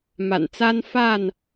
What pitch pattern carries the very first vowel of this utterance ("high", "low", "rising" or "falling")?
low